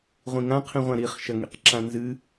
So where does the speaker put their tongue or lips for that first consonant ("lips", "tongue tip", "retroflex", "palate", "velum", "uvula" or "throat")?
uvula